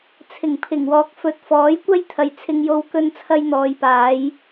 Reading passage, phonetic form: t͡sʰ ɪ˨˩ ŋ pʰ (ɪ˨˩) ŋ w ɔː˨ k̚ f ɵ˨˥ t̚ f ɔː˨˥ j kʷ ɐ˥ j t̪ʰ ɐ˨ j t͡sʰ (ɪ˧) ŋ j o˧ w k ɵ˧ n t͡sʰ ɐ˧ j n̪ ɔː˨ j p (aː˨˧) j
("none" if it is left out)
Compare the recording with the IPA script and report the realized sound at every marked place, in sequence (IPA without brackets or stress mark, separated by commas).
ɪ˨˩, ɪ˧, aː˨˧